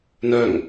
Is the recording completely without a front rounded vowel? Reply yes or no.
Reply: no